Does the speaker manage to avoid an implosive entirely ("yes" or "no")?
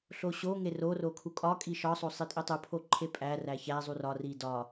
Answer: yes